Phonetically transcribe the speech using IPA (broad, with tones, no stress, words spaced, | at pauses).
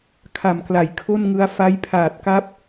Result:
kʰa˨˩mkla˩˦j kʰo˥˩nŋɯ˦˥a̯ fa˦˥jpʰaː˨˩t̚ka˦˥p̚